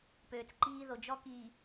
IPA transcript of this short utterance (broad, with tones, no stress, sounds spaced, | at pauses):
p øː˨ t͡s ǃ iː˦ ð o˨ d͡ʒ ɔ˦ k iː˨